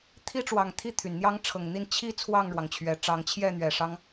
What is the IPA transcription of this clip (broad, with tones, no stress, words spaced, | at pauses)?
t̪ʰi˦ʈ͡ʂwɑ˨˩ŋ t̪ʰi˥˨t̪ʰy˩nn̪jɑ˦ŋ ʈ͡ʂʰɤ˨˩ŋn̪i˥˨n t͡ɕʰi˦ t͡sʰwɑ˥˨ŋɻwɑ˩ŋt͡ɕʰɥɛ˨˩ʈ͡ʂɑ˨˦ŋ t͡ɕʰjɛ˥˨n̪ɥɛ˨˩ ʂɑ˦ŋ